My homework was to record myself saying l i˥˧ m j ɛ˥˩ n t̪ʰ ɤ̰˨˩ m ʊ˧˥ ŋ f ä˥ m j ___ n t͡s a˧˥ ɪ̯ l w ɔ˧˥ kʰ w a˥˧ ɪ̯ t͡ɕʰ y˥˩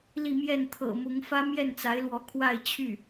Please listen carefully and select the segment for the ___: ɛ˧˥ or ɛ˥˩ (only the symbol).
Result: ɛ˥˩